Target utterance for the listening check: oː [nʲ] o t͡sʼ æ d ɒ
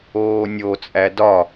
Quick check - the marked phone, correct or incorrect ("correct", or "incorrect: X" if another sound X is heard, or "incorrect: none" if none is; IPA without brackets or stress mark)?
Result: correct